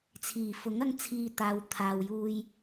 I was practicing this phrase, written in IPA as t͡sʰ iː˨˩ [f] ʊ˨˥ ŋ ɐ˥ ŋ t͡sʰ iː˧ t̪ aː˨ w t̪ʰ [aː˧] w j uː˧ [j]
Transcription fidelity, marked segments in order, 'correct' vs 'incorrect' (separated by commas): correct, incorrect, correct